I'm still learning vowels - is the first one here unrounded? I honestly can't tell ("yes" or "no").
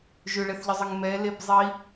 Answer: no